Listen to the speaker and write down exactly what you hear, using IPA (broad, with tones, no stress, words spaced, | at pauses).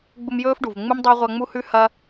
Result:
ɡ͡bu˦mjɵː˥fɖu˩v ŋ͡mu˥mdˤʉ˦w ʁʷɐ˦ŋ͡mu˥hʉ˥ hɐ˥